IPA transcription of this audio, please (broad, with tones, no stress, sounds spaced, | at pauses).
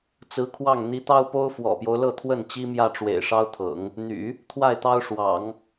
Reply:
t͡s ɹ̩˧˥ kʰ w ɑ˥˩ ŋ n̪ i˧˥ t̪ ɑ˥ ʊ̯ p o˥ ʊ̯ f w ɔ̰˨˩ p j o˦ ʊ̯ l ɤ˥˧ t̪ʰ w ə˥˩ n t͡ɕ i˥ m j ä˥˩ ʈ͡ʂ w ḛ˨˩ ɪ̯ ʂ ɑ˥ ʊ̯ t̪ʰ ɤ̰˨˩˦ ŋ | n̪ y̰˨˩˦ | t̪ʰ w a˥˩ ɪ̯ t̪ ɑ˥ ʊ̯ ʂ w ɑ̰˨˩˦ ŋ